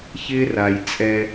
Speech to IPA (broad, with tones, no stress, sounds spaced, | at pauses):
ç ɪː˦ r a˨ j t͡sʼ ɛ˧